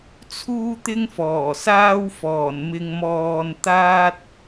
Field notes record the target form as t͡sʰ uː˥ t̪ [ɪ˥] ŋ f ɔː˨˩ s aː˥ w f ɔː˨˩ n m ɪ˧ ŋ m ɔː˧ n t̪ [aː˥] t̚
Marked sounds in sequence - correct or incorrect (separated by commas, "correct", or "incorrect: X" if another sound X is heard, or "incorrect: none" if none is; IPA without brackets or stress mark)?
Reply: correct, correct